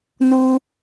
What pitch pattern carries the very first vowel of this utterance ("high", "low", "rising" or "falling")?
high